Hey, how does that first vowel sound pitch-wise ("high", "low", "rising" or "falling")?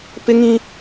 high